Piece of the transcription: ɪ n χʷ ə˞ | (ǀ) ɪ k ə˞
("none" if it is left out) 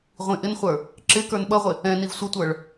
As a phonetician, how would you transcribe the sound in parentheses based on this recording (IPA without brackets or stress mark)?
ǁ